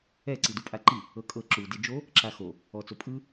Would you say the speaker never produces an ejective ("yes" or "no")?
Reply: no